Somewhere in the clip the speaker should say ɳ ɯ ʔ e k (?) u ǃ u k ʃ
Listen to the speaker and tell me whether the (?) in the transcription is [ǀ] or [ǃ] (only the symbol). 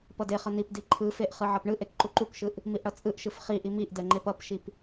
ǃ